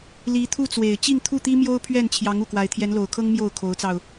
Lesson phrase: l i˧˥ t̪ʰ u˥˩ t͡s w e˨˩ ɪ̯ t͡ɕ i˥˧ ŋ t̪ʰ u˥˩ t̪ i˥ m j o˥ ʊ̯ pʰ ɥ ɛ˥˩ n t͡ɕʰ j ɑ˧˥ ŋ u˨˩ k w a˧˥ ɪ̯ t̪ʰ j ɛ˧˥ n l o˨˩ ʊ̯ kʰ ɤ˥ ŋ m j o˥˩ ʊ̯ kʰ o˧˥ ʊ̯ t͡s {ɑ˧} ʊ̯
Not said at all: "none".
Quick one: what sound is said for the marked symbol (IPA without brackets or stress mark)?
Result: ɑ˧